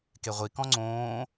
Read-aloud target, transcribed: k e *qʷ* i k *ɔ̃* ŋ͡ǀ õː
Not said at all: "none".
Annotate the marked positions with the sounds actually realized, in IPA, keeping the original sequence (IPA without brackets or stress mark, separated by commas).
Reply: ʁʷ, ɔ̃